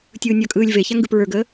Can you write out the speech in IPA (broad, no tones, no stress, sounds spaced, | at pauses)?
tʲ ɯː nʲ ʌ kʼ ɯː lʲ v e ç a ŋ ɡ ɯ p ɹ ə˞ ɡ əː